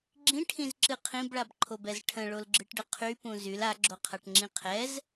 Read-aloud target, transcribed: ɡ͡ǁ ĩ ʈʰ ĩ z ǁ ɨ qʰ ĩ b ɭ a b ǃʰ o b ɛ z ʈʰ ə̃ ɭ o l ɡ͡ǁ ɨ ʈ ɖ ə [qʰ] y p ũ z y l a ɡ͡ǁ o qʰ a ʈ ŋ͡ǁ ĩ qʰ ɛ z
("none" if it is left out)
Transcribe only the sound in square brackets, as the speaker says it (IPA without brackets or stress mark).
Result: qʰ